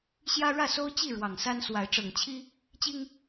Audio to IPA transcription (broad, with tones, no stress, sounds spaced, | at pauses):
ɕ j ä˦ ɻ ä˥˨ s o˦ ʊ̯ t͡ɕ i˥˨ ɻ w ɑ˨˩ ŋ s a˦ n s w a˨˦ ɪ̯ ʈ͡ʂ ɤ˨˩ ŋ t͡ɕʰ i˦ | t͡ɕ i˦ ŋ